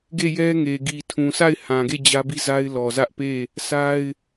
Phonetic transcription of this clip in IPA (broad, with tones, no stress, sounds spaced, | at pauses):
ɡ e˦˨ j ɛ˦ ŋ e˨ ɡ i˨ tʰ ũ˨ s a˦˨ ɪ̯ h ã˨ ɡ e˦˨ d͡ʑ ä˦ b i˦ z a˦ ɪ̯ l ɔ˨ z ä˦ ʔ p e˦˨ | sʰ a˦ ɪ̯